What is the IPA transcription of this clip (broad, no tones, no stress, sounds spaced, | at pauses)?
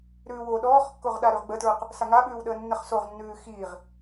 ɾ ʉː w o ɗ ɔː χ kː o ʁ ɗ a ɾ ʉ ʁ ɡ͡b ə t ɹ ʉ q | s a ŋ a ɓ ʉː w ɗ əː nː ə χ s o ʁ nː ʉː x iː ʁ